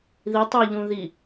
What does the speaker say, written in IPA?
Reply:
ði tˤeʎũ ði

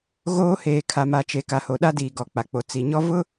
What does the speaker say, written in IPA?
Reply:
ɣoː˦heː˨ kʰa˨ma˨t͡ʃe˨ ka˨ho˨ɗa˦diː˨ ɡɔ˨k͡pa˨ k͡po˨t͡si˨ɲɔ˦ vʊ˦

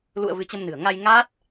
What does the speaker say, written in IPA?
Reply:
lṵ˧˨ə̯ vɨ˨˦t͡ɕə˧mnɨ̤˨˩ə̯ ŋa˧jŋa˦˥t̚

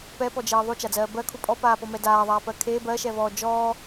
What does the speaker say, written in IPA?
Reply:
pɛpɔd͡ʒeː ðˤut͡ʃad͡zɜː bɜkʰu pʼɔpaːpɔmɛ daːðˤaːpɜ kʰe bɜʃɛvɔː d͡ʒɔː

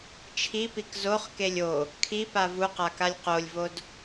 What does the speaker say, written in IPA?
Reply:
t͡ʃʰipik zoχkelʲ o | kʰipa vuqakalʲ qolʲvod

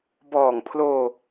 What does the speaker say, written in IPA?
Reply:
bɔː˨˩ŋpʰloː˧

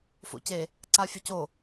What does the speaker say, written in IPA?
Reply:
fo̰ce | ǀafʲɵco

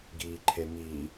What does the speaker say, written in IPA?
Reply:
ɡiːǃʰemi

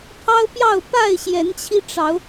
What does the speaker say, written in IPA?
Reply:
pʰɑ˦ʊ̯pjɑ˥˨ʊ̯ pa˥˨ɪ̯ɕjɛ˨˦nt͡ɕʰi˧ʈ͡ʂɑ˨˦ʊ̯

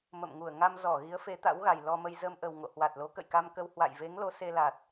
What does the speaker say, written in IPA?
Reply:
mə̰˧˨mŋu˧˩ə̯ ŋa˧mzɔ˧˩ ɣi˨˦ə̯fe˨˦t̪a̰˧˥wɣa˨˩j lɔ˧mə˧j zə˧mʔə˨˩wŋo̰˧˨ hwa˨˩t̚lo˨˦ kə̰˧˨jka˧mkə˧w hwa̰˧˨jve˨˦ŋlo˨˦ se˧ la˨˩t̚

